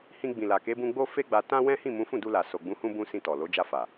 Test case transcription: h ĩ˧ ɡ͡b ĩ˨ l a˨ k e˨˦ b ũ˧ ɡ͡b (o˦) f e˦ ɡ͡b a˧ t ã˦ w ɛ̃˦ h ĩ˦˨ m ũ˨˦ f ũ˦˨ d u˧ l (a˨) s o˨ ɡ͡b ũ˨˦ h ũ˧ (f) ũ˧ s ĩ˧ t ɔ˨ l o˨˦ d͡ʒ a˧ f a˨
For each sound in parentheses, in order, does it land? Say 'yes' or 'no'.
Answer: yes, yes, no

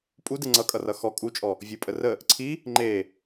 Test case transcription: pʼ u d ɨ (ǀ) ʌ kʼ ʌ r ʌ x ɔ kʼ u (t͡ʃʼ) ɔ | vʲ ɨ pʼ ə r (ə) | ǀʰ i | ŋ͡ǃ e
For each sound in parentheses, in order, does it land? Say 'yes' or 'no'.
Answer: no, yes, yes

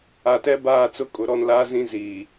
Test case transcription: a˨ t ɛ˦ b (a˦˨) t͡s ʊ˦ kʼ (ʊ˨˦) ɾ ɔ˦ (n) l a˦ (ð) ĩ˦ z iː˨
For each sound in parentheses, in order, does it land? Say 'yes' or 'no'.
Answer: no, yes, yes, no

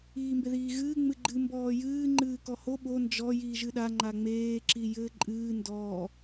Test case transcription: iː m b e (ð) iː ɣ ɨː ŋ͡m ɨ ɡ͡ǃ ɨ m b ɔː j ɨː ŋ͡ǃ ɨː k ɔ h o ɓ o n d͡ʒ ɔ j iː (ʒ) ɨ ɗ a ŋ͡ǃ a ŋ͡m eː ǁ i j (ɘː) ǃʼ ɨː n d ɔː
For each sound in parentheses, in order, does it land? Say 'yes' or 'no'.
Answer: yes, yes, yes

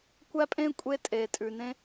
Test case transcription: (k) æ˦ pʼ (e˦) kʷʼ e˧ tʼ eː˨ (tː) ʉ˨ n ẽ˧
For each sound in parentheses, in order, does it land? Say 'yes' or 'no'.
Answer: no, no, no

